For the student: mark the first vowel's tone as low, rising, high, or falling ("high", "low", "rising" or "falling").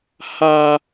high